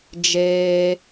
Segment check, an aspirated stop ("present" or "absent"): absent